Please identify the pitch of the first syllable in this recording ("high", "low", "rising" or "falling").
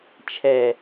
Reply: low